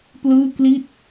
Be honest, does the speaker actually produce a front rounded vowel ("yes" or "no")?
no